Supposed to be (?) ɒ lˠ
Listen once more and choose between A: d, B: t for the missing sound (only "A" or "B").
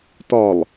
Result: B